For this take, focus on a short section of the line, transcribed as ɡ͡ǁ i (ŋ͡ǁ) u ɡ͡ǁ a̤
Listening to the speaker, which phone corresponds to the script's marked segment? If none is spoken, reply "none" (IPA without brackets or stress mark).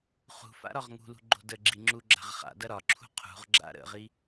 ŋ͡ǁ